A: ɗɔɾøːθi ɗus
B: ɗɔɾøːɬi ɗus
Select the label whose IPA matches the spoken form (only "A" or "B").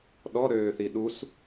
A